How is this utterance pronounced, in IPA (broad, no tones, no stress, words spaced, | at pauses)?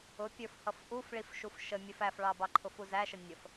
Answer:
ʊpʲə˞fhʌf ʔufɭifʃuf ʃəmʲəf æfɭɑbɑ ǃʰʊfuzæʃə nʲəf